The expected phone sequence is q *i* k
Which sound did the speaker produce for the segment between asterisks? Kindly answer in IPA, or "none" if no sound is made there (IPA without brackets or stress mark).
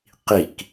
i